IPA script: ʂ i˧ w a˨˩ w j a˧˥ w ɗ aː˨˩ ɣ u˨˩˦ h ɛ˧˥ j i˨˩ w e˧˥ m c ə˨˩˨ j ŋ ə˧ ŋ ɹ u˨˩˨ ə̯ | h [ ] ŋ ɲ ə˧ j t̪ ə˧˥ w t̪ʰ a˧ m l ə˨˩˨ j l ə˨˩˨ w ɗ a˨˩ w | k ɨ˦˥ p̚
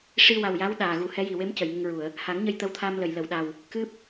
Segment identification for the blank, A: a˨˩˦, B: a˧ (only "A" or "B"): A